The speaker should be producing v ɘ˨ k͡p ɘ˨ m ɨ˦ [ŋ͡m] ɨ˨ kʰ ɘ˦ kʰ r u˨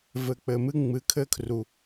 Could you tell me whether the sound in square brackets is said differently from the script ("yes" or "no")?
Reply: no